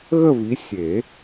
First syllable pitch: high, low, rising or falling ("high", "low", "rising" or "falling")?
falling